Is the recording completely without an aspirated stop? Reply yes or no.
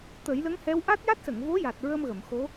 yes